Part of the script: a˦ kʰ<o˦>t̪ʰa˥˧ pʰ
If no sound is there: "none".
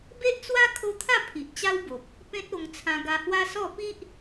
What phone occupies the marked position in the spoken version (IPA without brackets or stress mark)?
o˦